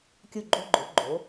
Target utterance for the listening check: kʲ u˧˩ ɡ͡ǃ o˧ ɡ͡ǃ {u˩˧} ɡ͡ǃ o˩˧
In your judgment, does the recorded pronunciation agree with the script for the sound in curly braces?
no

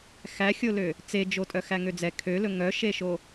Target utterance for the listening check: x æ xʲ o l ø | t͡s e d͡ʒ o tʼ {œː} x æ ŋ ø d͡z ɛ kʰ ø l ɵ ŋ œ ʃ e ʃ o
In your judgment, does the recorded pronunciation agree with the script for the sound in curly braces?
no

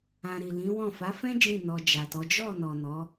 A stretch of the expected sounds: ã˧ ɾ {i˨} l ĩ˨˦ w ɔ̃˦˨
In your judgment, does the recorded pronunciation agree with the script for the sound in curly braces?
yes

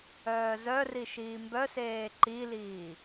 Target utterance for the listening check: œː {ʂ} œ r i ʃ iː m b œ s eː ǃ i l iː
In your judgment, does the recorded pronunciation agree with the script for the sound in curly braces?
no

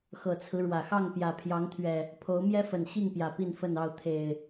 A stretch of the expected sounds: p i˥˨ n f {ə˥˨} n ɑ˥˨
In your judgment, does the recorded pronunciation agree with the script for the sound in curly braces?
yes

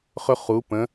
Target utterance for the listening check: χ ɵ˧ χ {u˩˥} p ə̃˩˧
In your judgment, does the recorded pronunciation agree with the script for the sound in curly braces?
no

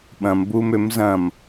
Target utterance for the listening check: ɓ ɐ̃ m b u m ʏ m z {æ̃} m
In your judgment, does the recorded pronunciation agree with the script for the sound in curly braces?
no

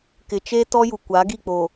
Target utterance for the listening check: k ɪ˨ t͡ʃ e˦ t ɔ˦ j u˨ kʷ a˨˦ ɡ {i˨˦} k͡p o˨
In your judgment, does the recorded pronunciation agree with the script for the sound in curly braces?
no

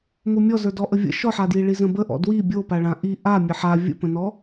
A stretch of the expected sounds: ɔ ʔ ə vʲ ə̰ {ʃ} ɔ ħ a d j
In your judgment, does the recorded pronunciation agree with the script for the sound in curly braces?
yes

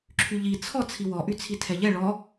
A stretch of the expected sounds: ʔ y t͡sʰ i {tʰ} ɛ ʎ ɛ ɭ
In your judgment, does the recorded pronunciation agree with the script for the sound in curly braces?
yes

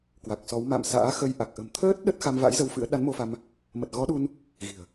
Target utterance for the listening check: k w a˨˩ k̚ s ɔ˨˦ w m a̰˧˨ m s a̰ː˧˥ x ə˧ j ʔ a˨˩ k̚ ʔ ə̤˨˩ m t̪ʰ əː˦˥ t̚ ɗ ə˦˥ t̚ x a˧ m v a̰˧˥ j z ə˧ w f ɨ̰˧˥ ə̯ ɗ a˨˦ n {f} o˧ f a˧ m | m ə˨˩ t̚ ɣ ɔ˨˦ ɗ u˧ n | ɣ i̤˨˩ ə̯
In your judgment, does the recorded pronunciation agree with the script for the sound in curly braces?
no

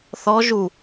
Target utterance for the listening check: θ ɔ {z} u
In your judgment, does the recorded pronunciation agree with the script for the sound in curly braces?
no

